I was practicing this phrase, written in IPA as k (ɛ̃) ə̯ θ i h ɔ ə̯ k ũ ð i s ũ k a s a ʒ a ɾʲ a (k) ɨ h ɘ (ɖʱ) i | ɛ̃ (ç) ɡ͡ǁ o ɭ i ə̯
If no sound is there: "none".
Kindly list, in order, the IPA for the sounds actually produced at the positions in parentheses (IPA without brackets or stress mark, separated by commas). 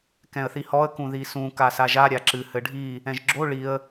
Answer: ɛ̃, ǁ, ɖʱ, ʒ